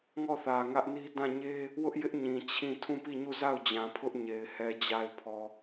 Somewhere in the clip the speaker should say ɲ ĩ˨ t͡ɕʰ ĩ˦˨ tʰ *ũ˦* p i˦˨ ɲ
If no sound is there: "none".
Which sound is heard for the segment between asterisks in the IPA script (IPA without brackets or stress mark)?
ũ˦˨